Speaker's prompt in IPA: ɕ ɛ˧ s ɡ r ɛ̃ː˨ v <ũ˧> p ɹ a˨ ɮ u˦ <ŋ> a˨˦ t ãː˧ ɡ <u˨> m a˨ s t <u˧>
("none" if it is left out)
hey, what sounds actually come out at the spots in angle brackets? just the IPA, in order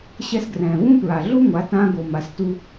ũ˦, ŋʷ, o˨, u˧

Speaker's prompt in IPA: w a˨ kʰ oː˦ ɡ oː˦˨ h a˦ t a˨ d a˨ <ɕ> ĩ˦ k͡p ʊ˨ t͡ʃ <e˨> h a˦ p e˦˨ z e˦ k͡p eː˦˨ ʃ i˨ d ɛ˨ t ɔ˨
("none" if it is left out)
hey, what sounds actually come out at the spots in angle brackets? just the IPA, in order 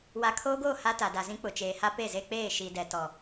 z, eː˨

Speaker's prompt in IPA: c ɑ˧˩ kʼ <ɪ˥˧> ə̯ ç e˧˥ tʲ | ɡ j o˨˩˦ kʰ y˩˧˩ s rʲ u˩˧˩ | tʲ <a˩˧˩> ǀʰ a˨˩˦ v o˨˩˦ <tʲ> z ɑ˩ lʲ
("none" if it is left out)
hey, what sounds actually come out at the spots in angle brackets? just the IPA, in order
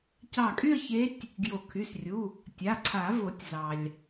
y˥˧, a˩˧˩, tʲ

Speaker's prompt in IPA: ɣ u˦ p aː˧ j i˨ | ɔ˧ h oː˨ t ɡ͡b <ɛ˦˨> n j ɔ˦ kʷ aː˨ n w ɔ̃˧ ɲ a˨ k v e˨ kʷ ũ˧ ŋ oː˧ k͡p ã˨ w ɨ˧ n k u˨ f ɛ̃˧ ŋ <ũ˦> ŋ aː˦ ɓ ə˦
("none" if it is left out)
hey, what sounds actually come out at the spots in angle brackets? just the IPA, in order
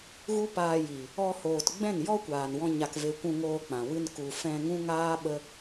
ɛ̃˦˨, ũ˦

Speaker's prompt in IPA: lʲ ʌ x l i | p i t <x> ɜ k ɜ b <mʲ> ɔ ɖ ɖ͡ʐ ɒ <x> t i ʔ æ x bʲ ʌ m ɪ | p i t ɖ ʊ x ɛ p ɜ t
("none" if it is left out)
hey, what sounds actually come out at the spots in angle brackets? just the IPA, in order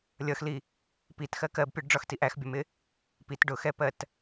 x, pʲ, x

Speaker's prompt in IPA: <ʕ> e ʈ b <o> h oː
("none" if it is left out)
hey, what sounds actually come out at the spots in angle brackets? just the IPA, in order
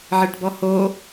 ʕ, ɔ

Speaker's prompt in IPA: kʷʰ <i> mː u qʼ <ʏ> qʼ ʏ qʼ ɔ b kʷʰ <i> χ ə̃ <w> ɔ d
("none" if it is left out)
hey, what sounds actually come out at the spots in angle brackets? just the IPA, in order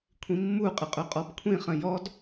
ĩ, ɪ, ĩ, j

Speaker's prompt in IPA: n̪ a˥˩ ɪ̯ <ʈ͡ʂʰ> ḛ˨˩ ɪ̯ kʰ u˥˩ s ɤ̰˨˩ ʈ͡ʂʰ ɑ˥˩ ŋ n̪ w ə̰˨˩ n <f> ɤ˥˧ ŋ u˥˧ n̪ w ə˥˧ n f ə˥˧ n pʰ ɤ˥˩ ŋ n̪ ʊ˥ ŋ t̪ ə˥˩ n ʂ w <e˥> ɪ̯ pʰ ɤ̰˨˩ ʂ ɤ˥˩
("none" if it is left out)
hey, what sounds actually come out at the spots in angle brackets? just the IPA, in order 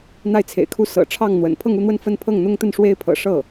t͡sʰ, pʰ, e˥

